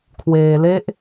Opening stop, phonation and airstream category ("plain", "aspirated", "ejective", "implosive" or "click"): aspirated